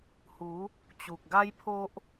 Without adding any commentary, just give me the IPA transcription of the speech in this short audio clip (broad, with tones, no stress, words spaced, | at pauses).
hu˨˦ | t͡ɕu˨k̚ ɡa˦jpʰo˦ʔ